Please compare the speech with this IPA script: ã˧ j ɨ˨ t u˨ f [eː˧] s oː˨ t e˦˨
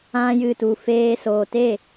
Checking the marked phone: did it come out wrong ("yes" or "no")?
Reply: no